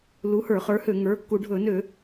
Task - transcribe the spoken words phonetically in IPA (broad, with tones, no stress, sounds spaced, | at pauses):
l u˨˥ h ə˞˧˩˧ χ ə˞˨˥ h ø˧˩˧ ŋ ə˞˩˧˩ kː u˧˩˧ ɖʱ ɵ˧˩˧ n ø˧˩˧